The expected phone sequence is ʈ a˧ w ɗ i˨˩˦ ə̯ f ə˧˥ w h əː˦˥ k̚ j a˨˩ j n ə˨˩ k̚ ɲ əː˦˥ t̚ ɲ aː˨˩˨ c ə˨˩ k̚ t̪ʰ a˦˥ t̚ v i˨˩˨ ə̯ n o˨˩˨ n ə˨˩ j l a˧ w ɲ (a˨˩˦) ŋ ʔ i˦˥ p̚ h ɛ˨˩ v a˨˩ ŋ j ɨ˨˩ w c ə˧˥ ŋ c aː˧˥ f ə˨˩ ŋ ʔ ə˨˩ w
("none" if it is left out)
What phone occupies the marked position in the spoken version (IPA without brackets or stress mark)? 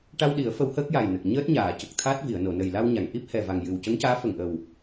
a˨˩˨